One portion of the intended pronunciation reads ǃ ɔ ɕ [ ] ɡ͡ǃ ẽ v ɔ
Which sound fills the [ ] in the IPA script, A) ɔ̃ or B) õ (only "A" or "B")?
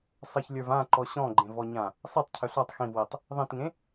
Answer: A